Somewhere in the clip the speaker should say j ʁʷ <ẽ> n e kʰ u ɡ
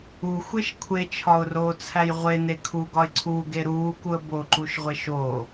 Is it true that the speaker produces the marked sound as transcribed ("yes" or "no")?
no